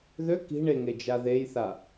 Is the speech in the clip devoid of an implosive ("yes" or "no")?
yes